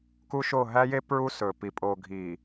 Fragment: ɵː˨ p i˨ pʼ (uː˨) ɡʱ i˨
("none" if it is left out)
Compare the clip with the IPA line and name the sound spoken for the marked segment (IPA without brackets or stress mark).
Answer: oː˨